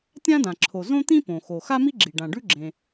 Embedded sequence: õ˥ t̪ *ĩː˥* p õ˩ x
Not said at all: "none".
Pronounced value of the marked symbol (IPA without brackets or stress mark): ĩ˥